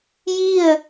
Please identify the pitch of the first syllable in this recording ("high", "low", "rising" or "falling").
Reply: falling